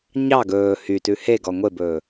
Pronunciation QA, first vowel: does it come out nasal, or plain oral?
oral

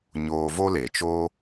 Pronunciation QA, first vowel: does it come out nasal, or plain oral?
oral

